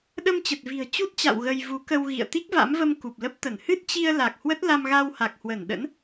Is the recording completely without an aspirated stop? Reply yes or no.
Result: yes